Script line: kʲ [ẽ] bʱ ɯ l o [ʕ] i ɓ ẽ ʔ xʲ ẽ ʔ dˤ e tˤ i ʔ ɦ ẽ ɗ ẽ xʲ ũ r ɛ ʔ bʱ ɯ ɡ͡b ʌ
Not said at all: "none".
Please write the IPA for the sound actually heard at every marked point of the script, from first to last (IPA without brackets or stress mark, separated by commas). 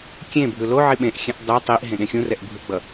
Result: ẽ, ʕ